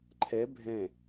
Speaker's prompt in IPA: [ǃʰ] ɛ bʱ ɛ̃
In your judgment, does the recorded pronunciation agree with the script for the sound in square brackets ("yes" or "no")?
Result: yes